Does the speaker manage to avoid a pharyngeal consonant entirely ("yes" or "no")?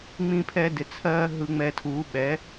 yes